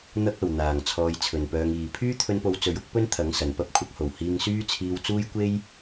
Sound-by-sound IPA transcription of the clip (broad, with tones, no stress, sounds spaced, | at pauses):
n̪ ɐ˥ k̚ ɐ˨ w n̪ aː˨˩ ŋ t͡sʰ ɔː˧ j t͡sʰ ɵ˨ n p œː˧ ŋ iː˨ pʰ yː˥ t̪ʰ ɵ˧ n p o˨˧ w t͡s ɵ˨˧ ɥ ʊ˥ k̚ p ɵ˥ n t̪ʰ ɐ˨˥ ŋ s ɐ˨ n p ɐ˥ p̚ kʷʰ ɐ˨˥ k̚ h o˨˩ w h iː˧ ŋ s yː˥ t͡sʰ iː˧ w t͡s uː˥ j kʷ e˥ j